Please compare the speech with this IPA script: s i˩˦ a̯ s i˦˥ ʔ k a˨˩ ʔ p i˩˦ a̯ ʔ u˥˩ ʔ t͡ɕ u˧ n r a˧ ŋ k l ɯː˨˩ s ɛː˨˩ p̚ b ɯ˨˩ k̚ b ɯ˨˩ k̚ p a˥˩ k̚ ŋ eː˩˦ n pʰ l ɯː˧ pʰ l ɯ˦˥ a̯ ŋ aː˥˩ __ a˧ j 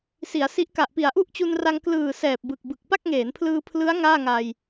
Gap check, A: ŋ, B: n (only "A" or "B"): A